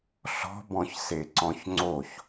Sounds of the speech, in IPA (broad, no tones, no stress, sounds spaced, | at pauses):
ɬ ɔ̤ b ɔ̃ ç s e ǀ ɔ̃ ç ŋ͡ǀ o ç